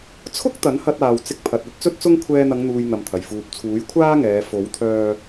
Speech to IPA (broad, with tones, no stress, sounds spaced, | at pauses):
t͡sʰ ʊ˥ k̚ t̪ ɐ˨˥ n h ɐ˧ t̚ aː˨ w t͡s ɪ˧ k̚ pʰ ɐ˨ t̚ ɐ˨˥ t̚ t͡s ɵ˥ t̚ t͡s ʊ˥ ŋ kʷʰ ɛː˧ n̪ ɐ˨˧ ŋ n̪ uː˨ j n̪ ɐ˨ m t̪ʰ ɐ˨˩ j f uː˨ p̚ t͡sʰ uː˨˥ j kʷʰ aː˥ ŋ ɛː˨˧ f o˨˥ w t̪ʰ œː˧